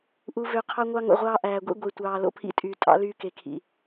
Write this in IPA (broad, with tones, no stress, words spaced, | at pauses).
ʔu˨vø˨ qʰɑ˦ŋʷɑ˦ŋo̰˨ʁʷɑː˦ ʔæː˨ɡʷḭ˦ ɡʷe˨tʷɑː˨ lo̰˦pʰḭ˦tʼyː˨tʼɑ̰˦ lyː˦ke˨kʰḭ˨